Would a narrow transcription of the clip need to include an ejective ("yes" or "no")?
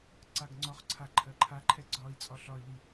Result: yes